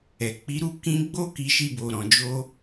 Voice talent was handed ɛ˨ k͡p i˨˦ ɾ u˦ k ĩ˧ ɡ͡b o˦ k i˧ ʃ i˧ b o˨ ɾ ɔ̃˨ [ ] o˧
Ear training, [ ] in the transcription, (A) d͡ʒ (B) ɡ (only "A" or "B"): A